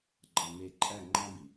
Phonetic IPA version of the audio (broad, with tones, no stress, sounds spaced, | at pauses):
ɡ͡ǃ ɑ˨ m e˨ ǃʼ æ˦˨ ŋ͡ǃ ɑ̃˦ b i˨